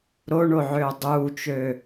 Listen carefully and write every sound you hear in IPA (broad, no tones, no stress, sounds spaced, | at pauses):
ɾ o ɳ o ʕ øː dˤ uː t͡ʃ ø